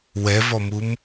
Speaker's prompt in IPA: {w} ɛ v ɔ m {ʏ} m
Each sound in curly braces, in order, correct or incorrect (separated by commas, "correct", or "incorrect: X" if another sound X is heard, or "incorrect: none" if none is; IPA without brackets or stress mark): correct, incorrect: u